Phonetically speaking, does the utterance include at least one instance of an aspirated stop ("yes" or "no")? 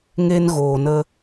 no